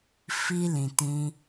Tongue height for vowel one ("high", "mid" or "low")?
high